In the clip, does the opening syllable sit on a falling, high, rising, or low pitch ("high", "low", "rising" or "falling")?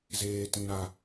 high